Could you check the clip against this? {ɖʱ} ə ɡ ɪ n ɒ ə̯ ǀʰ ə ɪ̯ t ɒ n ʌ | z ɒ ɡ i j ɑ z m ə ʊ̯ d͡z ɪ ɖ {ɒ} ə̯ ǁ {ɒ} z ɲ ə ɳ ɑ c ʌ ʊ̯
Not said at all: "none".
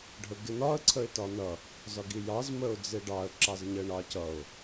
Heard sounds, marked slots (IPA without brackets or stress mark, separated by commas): ɖʱ, ɑ, ɑ